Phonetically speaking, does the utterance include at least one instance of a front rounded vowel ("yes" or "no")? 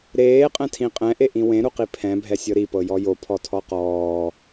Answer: no